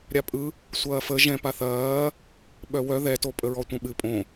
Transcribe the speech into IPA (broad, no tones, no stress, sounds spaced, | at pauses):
ɾʲ a pʼ ɯ | sʷ ɐː f ə ʒ ɛ̃ p a θ ɐː | ɓ œ w œ ð ɛ t o pʼ ə ɹ ɔ tʷ ɐ̃ ɓ ɨ pʼ õ